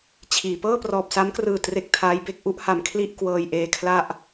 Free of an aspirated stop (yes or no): no